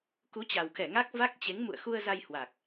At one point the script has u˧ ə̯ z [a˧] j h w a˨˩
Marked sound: correct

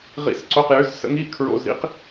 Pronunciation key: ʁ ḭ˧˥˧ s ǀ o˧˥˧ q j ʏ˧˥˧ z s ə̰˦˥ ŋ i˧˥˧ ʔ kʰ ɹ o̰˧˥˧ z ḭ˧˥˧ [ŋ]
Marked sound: incorrect: q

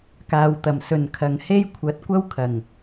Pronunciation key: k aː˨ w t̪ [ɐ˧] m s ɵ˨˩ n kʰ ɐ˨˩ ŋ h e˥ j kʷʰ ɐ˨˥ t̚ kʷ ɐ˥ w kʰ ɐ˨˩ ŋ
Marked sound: incorrect: ɐ˨˩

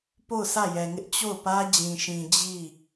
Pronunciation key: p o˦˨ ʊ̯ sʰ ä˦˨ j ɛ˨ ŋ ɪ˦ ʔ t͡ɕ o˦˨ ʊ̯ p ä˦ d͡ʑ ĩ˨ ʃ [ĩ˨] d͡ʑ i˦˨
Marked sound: correct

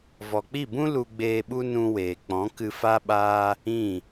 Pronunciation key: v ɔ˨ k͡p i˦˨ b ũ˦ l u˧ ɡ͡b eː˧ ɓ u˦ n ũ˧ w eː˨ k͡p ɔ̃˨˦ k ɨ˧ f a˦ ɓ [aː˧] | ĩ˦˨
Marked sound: incorrect: aː˦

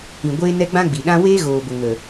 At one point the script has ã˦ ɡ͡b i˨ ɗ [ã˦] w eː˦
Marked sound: correct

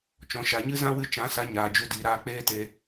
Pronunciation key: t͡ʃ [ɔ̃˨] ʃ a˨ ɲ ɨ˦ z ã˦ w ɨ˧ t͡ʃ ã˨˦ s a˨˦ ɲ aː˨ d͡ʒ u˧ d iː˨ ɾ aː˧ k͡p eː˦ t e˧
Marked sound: correct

